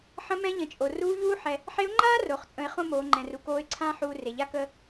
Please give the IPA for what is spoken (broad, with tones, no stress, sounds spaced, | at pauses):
ħ ə̃˧˥ m ɛ̃˧˥ ʎ ə̃˩˧ t͡ʃʼ o˩ r uː˧˥ ʎ uː˥ ħ ɛ˧ | ħ e˧˥ ʊ̯ ŋ͡ǃ aː˥ r o˩ χ t͡sʼ ə̃˩˧ ɪ̯ χ õ˥ m oː˩˧ ŋ͡ǃ ɛ̃˩ r u˩ k oː˧˥ ɪ̯ ǀʰ ãː˥ ħ uː˧ r e˩ ʎ a˥ k ə˥